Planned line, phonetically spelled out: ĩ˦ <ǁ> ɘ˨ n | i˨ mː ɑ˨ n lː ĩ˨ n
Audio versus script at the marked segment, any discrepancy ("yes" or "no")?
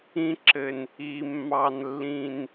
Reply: no